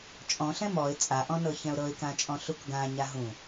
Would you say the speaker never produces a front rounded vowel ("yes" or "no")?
yes